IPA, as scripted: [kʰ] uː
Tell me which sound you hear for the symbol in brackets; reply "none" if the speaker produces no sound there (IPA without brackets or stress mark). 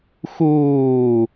x